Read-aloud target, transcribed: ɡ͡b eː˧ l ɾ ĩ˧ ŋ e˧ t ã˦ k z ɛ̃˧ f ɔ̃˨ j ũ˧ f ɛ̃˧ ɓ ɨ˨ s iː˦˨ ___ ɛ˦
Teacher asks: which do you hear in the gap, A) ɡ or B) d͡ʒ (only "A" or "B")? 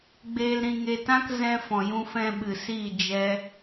B